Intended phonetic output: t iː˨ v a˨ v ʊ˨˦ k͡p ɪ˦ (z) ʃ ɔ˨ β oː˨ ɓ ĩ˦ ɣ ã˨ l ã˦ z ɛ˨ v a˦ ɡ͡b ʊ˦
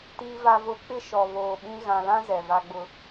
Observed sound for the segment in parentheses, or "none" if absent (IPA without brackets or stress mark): none